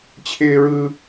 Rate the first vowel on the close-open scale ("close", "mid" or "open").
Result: close